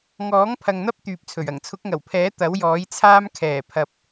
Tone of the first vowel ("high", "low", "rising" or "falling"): rising